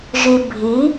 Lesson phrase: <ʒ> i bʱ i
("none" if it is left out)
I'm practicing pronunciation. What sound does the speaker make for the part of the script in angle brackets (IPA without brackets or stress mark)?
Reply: ʒ